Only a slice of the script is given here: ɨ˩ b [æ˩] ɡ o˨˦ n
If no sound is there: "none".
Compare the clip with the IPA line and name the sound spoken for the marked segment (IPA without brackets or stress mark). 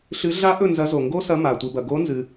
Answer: ɐ˩